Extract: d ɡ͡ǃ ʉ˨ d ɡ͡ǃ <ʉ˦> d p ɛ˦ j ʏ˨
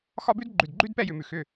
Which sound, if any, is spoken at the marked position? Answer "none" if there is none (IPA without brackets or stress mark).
ʉ˦